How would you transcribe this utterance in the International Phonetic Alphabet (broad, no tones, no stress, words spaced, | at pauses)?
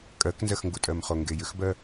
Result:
kʼɜknzɜxŋɡutʼɜm χoŋɡejʏxbɜ